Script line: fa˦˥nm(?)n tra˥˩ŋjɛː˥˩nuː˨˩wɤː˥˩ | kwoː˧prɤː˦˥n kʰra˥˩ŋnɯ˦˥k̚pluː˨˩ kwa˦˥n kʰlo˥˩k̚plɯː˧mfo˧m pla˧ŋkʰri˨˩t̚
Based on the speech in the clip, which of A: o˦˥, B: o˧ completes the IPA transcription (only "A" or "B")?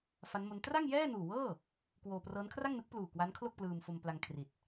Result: A